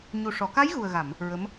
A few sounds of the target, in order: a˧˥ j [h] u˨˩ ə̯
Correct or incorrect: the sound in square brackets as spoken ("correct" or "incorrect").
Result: incorrect